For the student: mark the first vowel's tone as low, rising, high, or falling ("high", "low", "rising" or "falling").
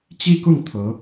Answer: falling